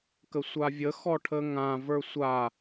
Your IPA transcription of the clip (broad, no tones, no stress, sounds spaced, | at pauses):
k ə sʷ a vʲ ə x ɔ ʈʰ ə ŋ ã v ə˞ sʷ a